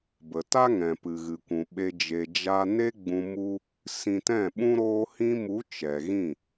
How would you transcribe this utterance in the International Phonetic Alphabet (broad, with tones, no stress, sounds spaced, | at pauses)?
b ə˨ t a˦ ŋ ɛ̃˨ p ɨ˨ ɣ ɨ˨ kʷ ũ˨ ɓ e˧ d͡ʒ e˨ d͡ʒ a˧ n e˦ ɡ͡b ũ˧ m u˦ | s ĩ˧ t ɛ̃˦˨ ɓ ũ˦ ɾ oː˧ h ĩ˧ m u˨˦ t͡ʃ ɛ˨ ɣ ĩ˦˨